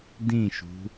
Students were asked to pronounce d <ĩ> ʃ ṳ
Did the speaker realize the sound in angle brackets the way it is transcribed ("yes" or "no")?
yes